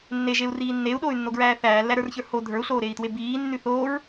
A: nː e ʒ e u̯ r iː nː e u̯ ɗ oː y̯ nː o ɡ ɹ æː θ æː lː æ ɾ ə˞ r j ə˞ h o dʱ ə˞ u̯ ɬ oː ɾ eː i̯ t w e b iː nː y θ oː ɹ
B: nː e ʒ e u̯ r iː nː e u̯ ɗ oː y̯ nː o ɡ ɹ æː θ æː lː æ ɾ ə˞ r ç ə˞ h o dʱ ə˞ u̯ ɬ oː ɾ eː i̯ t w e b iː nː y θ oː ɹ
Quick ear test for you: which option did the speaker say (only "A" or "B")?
B